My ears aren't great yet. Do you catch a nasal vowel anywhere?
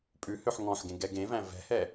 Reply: yes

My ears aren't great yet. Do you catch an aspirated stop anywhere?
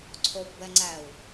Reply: yes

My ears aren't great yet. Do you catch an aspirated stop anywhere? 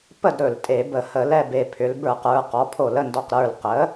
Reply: yes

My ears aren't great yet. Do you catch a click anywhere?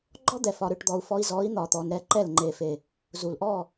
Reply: yes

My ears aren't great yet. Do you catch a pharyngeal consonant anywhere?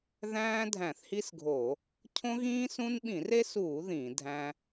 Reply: no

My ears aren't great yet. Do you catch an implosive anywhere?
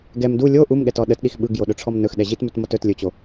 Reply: yes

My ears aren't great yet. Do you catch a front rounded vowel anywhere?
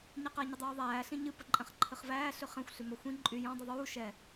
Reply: yes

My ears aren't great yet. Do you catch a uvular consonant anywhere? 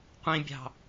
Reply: yes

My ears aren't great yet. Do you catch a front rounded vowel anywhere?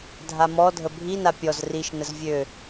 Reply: yes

